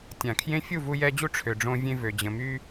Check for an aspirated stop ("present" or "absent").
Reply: present